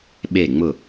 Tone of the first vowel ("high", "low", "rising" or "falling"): falling